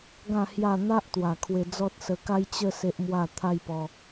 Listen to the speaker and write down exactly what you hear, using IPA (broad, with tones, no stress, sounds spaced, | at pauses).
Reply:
ɡ ã˥˧ h j a˥˧ n̪ a˦ ʔ t̪ w a˨˩ kʰ w e˧ d͡z ɔ˦ t̚ s ə˧ k a˦ j t͡ɕ ə˥˧ s e˦ ʔ m w a˥˧ t̪ʰ a˦ j p ɔ˧